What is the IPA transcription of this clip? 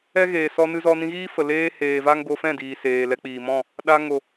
ɛ˦ ɣ eː˨ s ɔ˧ n ɨ˧ z ɔ˧ n ĩ˧ ɣ iː˦ f ə˨ l eː˦ h eː˨ v a˦ ŋ ɡ o˧ f ɛ̃˦˨ d iː˨ s eː˨ l ɛ˧ k͡p iː˨ m ɔ̃˦˨ | ɗ a˧ ŋ o˨

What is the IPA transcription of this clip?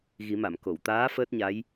ɣ i˨˩˦ m a˨˩˨ m k o˨˩˨ w t̪ aː˧˥ f əː˦˥ t̚ ɲ a˧˥ j

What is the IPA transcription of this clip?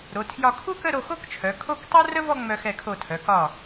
ɾ o˩˧ tʰ j ɒ˧ kʰ u˥ k ə˥˧ ɾ o˧ x o˥ k t͡ʃʰ œ˩˧ kʰ o˥˧ k tˤ u˥ r ə˥ v ɔ˥˧ ŋ͡m œ˧ x ɛ˧˩ kʰ o˧˩ tʰ œ˩˧ k ɒ˧˩

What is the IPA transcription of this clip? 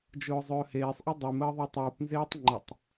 d͡ʒ ʊː zˤ ɵː h eː sˤ ʔ ʊ dˤ y m əː ðˤ i tˤ uː p n z eː tˤ ŋ͡ǃ ə tˤ

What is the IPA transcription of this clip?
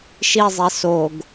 ʃ i zˤ e s o ɡ

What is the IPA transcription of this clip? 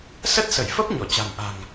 s ə˦˥ t̚ s ə˧˩ j f ə˦˥ p̚ ɲ ɔ˧˩ t͡ɕ a̤˨˩ m ʔ a̤˨˩ ŋ

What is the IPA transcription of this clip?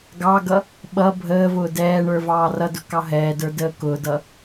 ɡ ɑ ɡ ʌ | ɓ ʌ bʱ əː v ʊː d ɛː ɳ ə˞ v ɑː r ʌ d ʊ k ɑ ɦ ɛː d ə˞ d əː k ʊː d ʌ

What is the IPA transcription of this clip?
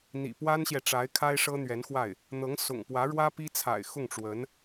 n̪ ḭ˨˩ p w a˥ n ɕ j ɛ˨ ʈ͡ʂ a˧˥ ɪ̯ kʰ a˥ ɪ̯ ʂ ɤ˥ n̪ ɥ ɛ˧˥ n x w a˥˩ ɪ̯ | n̪ ɤ˧˥ ŋ s ʊ̰˨˩ ŋ p w ä˧˥ ɻ w ä˥ p i˥ t͡sʰ a̰˨˩ ɪ̯ x ʊ˥˩ ŋ ʈ͡ʂ w ə˧˥ n

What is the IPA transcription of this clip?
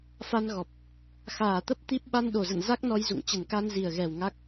f a˧ n ɣ ɔ˨˩ p̚ | x aː˨˩ t̪ ə˦˥ p̚ t̪ i˦˥ p̚ ɓ a˧ n ɗ o˨˩ z ə̰˧˨ n z a˦˥ k̚ n ɔ˧ j z ṵ˧˨ ŋ t͡ɕ ə˨˩ n k a˧ n z i˨˩ ə̯ ɣ ɛ˨˩ w ŋ a˦˥ k̚

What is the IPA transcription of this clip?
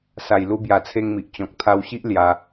s a˨˩ j l u˧ b j a˨˩ t͡sʰ e˧ ŋ m i˨ ʔ t͡ɕ ɔ̃˨ k̚ t̪ʰ a˧ w ɕ i˦ ʔ l j a˧

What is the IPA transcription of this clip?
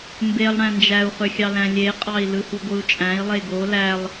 m b e lˠ ɽ æ̃ n d͡ʒ æ u̯ χ ø xʲ ɑ l æ̃ lʲ e qʼ ɑ i̯ l ɯ h u ɡʷ ɯ u̯ t͡ʃʼ æ̃ i̯ lˠ e ɡ o l æ lˠ

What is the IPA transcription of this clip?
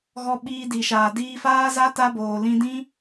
ɣ ɔ˧ ɓ iː˧ d i˨ ʃ aː˨ d iː˧ f aː˦ z a˦ t a˦ b oː˨ l ĩ˧ d ĩ˦

